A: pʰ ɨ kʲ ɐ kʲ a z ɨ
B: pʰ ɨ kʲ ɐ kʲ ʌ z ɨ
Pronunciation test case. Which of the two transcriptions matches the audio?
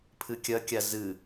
A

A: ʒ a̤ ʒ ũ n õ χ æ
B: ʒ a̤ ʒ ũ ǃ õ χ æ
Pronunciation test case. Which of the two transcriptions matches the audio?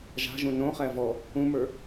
A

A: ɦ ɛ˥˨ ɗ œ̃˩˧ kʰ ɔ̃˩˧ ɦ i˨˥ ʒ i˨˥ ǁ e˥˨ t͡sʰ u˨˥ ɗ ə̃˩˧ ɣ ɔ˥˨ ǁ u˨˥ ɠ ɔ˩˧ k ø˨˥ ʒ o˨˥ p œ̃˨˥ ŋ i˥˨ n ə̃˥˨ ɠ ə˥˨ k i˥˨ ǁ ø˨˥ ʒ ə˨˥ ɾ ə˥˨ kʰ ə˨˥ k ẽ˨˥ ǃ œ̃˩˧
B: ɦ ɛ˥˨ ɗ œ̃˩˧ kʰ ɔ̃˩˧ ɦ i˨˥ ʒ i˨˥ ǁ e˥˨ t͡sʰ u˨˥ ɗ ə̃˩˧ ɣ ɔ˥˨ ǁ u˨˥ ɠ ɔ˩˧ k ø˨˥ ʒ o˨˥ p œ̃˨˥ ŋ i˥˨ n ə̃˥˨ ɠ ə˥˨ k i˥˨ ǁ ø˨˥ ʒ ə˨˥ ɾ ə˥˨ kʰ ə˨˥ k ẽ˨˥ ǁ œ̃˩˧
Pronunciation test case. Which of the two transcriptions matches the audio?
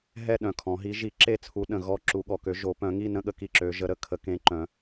A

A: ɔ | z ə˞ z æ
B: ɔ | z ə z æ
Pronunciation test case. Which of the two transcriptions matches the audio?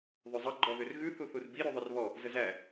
B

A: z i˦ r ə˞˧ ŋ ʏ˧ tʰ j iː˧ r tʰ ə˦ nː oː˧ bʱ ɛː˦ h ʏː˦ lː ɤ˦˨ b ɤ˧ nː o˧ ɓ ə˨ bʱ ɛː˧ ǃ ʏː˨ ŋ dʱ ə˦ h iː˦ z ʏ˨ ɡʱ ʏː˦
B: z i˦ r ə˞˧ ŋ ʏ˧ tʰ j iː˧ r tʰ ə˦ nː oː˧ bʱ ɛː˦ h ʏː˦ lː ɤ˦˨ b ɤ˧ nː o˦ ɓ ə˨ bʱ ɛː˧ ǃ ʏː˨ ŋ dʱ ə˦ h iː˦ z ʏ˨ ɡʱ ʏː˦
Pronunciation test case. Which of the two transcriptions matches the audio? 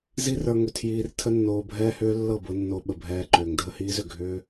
A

